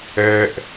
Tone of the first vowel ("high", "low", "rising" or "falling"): low